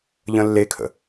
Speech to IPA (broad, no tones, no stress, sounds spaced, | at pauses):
ʎ ə̃ lː e kʰ ə̰